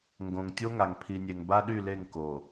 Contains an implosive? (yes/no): yes